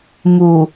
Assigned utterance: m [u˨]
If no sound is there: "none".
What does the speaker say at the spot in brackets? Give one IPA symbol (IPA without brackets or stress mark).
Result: u˨